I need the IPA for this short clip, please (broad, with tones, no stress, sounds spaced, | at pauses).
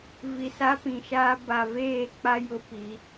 v i˨ s a˦ p ĩ˨ ʃ aː˦ b a˨ v eː˦˨ k͡p a˦ j ʊ˦ p i˨˦